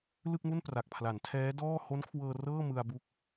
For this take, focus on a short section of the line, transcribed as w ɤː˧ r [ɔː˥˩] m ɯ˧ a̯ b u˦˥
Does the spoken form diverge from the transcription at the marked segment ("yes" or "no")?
yes